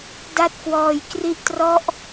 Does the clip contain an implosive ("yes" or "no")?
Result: no